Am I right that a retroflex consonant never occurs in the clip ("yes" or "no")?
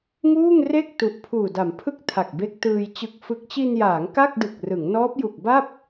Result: yes